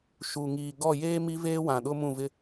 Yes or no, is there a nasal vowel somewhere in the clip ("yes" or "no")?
yes